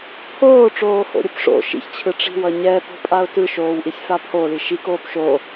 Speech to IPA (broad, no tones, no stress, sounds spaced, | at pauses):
pʰ oː ʈ͡ʂ oː h o̰ ɾʲ ɯ p ʂ o̰ ʃ ḭ ç t͡ɕʰ ɯ ʈ͡ʂ i̤ w ʌ ɲ ɛ p o̤ pʼ a ʊ̯ t ɯ ʃ oː w ʔ i sʲ f a pʰ o l i ʃ i k oː p ʃ o